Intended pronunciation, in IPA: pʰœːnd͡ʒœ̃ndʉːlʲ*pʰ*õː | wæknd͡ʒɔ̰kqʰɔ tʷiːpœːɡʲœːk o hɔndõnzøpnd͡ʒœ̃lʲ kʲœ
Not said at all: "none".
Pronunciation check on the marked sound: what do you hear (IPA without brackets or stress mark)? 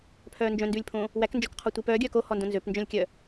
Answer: pʰ